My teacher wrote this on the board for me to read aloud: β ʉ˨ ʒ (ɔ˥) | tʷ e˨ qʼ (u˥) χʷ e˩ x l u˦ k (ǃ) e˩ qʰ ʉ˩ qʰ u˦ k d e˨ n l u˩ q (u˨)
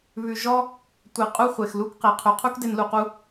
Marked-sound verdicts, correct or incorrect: incorrect: ɔ˦, incorrect: u˦, incorrect: q, correct

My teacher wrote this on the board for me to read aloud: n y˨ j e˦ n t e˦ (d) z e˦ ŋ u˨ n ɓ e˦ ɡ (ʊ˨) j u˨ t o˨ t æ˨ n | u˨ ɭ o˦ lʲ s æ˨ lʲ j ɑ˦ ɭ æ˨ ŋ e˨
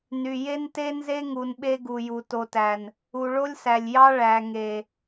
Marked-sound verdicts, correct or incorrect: incorrect: n, incorrect: u˨

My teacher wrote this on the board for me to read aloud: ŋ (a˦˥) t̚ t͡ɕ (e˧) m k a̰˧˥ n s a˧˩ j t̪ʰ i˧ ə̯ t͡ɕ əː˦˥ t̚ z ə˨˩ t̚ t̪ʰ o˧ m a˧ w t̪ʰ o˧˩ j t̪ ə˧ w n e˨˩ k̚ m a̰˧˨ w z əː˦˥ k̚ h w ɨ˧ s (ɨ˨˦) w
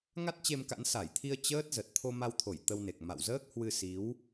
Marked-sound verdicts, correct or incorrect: correct, correct, incorrect: i˨˦

